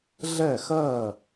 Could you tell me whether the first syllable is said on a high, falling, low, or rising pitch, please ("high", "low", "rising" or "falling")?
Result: falling